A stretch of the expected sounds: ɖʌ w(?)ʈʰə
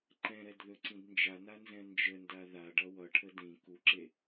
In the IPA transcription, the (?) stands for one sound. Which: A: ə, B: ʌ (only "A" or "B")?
B